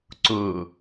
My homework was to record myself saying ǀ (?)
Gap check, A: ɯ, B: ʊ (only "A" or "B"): B